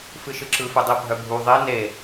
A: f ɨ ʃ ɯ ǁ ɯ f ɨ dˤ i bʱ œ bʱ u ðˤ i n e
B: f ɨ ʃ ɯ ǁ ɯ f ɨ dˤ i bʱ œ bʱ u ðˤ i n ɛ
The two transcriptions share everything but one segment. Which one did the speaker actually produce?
A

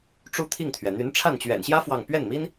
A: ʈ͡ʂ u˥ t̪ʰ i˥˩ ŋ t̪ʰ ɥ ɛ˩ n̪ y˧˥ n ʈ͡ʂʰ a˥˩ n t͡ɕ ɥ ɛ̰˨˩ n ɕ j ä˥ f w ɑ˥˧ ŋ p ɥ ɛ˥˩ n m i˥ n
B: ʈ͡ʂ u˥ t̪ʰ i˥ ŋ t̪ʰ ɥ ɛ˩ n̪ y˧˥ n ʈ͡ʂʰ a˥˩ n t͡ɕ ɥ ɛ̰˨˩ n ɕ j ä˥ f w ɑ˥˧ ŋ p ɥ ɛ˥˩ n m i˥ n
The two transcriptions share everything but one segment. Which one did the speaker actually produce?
A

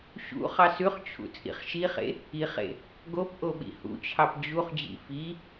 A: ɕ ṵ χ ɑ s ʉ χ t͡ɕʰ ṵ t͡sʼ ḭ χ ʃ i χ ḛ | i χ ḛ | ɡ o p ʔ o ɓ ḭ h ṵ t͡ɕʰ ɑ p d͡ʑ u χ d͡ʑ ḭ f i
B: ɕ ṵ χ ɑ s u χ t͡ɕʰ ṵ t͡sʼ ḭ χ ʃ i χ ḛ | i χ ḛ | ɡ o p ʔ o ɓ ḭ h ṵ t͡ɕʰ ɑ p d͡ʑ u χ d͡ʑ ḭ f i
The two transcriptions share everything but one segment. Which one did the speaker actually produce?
A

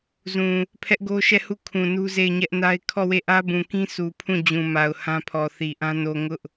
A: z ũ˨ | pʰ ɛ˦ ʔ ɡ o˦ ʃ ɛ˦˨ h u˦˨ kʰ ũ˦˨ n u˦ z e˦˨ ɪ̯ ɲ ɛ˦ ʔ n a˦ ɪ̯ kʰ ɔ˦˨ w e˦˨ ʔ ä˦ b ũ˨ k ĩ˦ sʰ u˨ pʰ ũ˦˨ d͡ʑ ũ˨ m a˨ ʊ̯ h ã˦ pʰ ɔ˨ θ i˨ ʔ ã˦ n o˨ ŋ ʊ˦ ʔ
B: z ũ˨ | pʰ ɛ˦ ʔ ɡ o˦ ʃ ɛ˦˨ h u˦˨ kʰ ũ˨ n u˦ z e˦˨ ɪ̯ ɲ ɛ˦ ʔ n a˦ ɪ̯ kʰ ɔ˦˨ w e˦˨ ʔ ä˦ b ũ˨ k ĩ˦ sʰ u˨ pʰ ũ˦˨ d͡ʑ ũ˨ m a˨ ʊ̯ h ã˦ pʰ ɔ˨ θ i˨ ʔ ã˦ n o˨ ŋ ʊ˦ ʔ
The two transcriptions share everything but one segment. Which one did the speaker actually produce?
B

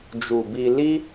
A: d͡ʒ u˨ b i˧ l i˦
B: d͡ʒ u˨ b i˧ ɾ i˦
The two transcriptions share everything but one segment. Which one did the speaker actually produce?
A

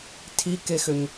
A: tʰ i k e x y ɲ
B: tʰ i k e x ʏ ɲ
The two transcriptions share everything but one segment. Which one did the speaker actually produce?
B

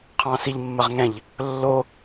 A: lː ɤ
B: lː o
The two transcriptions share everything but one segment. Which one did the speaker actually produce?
B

